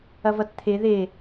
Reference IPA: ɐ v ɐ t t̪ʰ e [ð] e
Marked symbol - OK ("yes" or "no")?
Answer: yes